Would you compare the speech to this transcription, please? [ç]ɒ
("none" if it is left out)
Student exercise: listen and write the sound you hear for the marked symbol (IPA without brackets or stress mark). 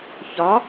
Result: ç